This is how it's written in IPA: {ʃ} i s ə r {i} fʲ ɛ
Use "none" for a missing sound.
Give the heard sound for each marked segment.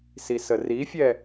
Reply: s, i

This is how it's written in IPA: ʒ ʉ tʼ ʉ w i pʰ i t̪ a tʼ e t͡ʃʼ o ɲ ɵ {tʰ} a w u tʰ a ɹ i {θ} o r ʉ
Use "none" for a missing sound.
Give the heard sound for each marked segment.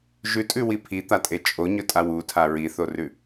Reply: tʼ, θ

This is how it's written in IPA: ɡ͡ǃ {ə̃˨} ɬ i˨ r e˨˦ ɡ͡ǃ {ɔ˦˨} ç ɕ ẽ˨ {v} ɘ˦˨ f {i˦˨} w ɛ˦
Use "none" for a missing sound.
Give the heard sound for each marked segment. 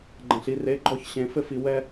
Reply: ɐ̃˨, ɔ˦˨, f, i˨

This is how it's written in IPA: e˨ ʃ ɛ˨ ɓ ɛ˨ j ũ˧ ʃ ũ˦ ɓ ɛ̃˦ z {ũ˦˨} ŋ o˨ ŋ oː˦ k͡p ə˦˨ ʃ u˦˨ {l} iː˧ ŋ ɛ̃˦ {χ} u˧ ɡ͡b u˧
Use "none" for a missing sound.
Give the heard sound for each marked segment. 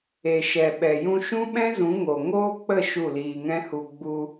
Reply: ũ˨˦, l, h

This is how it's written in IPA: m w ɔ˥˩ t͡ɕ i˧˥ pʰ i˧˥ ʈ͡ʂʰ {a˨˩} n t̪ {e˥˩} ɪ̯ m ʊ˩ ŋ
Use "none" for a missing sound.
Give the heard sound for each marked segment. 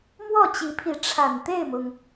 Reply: a˨˩, e˥˩

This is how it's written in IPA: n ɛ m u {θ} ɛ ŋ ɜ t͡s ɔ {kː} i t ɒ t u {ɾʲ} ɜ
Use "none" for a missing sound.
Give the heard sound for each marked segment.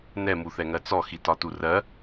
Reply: θ, x, r

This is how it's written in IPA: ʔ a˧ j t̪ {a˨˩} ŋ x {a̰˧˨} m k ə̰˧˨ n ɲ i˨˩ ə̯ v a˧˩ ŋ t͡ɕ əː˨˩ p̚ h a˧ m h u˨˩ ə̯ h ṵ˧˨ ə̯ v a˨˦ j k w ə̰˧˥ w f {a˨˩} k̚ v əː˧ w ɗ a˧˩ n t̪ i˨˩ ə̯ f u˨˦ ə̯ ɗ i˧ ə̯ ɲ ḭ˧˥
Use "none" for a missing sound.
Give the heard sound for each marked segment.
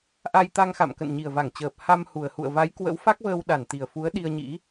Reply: a˧, a̰˧˨, a˦˥

